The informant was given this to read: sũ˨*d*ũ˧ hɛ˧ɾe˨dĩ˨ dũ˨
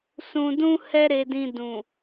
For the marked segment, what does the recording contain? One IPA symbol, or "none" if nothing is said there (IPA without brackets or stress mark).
d